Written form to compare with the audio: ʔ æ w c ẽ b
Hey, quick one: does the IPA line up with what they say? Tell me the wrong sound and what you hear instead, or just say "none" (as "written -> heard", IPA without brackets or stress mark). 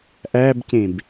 w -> b